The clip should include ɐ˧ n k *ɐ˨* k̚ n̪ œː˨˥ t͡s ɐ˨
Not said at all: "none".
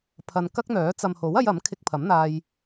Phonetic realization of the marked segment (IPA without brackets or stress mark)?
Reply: ɐ˥